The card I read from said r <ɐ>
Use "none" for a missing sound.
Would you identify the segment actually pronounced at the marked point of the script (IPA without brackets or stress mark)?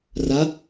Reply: ɐ